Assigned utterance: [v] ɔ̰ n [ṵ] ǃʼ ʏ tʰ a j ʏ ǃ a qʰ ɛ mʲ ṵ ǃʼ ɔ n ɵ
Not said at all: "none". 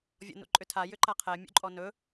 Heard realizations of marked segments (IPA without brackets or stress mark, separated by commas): vʲ, ṵ